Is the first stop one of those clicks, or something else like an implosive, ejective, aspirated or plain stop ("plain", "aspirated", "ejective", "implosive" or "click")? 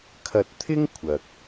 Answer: aspirated